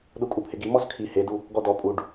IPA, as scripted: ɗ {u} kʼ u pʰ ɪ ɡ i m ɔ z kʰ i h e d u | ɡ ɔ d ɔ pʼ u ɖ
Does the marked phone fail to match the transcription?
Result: no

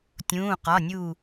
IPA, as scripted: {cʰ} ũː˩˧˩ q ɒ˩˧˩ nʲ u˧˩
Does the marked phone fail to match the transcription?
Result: yes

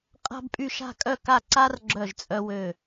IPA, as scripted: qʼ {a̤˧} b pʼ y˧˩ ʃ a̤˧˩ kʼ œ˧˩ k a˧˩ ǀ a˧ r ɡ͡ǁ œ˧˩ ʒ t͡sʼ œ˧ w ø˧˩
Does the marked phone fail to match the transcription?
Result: no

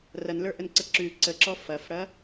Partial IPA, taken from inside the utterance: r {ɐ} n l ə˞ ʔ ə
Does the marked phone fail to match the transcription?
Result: no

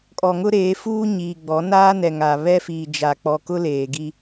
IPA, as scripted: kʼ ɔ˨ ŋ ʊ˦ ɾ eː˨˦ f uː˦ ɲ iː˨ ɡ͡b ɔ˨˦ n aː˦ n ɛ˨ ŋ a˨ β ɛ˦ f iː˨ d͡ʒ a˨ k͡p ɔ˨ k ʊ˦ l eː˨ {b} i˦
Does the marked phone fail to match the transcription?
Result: yes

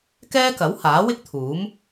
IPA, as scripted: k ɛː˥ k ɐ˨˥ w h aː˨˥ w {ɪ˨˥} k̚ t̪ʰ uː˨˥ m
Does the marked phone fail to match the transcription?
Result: yes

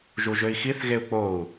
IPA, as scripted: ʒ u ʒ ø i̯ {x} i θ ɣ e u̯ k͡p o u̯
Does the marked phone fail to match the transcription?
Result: no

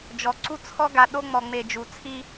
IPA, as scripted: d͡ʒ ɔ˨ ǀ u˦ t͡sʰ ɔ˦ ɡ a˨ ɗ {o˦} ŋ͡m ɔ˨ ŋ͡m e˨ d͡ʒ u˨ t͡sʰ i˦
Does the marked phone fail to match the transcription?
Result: no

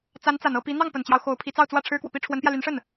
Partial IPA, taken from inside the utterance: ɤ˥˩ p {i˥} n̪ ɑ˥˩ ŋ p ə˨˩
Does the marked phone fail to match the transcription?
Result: yes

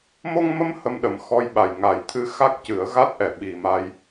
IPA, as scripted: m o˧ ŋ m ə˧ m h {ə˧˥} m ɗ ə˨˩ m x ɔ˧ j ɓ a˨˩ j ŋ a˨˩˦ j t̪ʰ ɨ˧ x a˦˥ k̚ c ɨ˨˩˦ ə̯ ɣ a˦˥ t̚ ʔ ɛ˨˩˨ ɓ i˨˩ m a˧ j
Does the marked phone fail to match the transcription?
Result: yes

